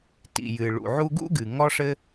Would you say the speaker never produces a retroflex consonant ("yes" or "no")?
no